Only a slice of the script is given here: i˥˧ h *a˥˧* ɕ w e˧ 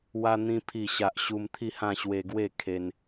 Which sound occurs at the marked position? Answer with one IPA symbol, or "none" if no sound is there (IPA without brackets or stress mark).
ã˥˧